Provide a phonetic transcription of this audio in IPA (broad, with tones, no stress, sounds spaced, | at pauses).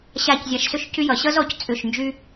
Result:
ɕ a˦˨ c zʲ a˧ ʃ s ʏ˦ ʃ c y˦ j ʌ˨ ɕ ʌ˦ z ɔ˨ c t͡sʼ ʏ˦˨ ʃ n d͡ʒ y˦